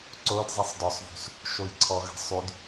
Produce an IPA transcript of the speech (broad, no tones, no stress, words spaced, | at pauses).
ǀod zˤisˤdɔsˤvṳs | ʃojǀʰɔɣə̤ sˤyd